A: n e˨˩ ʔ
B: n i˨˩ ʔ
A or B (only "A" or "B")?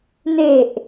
A